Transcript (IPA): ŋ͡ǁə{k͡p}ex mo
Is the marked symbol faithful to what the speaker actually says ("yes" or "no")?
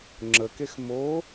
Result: no